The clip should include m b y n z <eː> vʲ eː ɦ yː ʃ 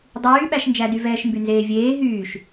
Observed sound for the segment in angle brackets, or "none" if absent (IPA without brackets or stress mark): eː